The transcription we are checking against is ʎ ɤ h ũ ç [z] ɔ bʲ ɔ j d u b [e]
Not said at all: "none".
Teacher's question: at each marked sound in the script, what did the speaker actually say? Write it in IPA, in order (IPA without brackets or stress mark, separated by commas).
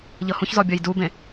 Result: z, ẽ